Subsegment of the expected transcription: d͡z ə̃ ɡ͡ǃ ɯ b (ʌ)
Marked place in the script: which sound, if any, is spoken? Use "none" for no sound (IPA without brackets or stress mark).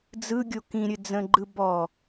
ɔ